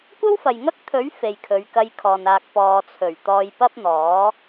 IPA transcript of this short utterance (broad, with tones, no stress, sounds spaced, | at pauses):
kʷ ɐ˥ w f ɐ˨ j ŋ ɐ˥ k̚ t̪ʰ ɵ˨˥ ɥ f e˨ j kʰ ɵ˨˧ ɥ k ɐ˧ j kʰ ɔː˨ n aː˨ k̚ p ɔː˨ t͡sʰ ɵ˨˩ ɥ t̪ ɔː˧ j p ɐ˥ p̚ n̪ ɔː˨˥